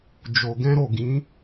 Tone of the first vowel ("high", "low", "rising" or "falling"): low